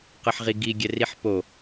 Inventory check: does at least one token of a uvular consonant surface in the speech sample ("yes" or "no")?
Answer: yes